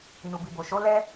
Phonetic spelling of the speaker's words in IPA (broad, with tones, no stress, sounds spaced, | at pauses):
n u˨ b i˨ b o˨ ʃ o˨˦ l ɛ˦